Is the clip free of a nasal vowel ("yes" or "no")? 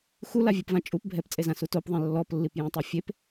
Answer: no